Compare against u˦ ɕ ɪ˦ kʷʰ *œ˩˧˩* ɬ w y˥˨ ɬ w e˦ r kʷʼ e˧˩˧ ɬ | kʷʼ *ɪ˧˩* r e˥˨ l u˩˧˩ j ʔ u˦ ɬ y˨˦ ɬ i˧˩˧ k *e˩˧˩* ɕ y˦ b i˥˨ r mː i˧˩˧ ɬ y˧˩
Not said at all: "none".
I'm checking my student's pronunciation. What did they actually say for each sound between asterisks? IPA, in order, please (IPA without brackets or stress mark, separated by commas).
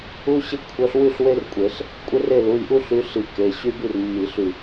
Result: œ˨˦, ɪ˦, e˩˧˩